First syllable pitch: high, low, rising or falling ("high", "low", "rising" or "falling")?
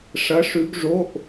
rising